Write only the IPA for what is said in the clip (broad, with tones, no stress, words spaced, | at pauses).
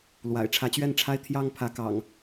lwa̰˨˩ɪ̯ ʈ͡ʂʰä˨˦t͡ɕɥɛ˥˨nʈ͡ʂʰa˦ɪ̯ t̪ʰjɑ˦ŋ pʰä˨˦kɑ̰˨˩ŋ